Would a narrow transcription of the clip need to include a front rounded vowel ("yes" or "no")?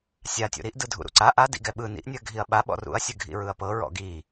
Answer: no